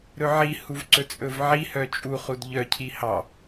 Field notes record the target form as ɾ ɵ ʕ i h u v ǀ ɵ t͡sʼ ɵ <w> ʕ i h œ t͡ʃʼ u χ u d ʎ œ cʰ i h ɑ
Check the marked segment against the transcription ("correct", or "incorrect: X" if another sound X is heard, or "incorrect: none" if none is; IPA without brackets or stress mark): incorrect: v